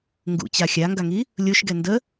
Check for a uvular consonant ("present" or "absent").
absent